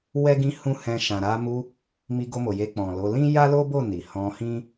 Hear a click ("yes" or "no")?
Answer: no